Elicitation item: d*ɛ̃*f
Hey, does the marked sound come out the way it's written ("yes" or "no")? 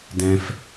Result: yes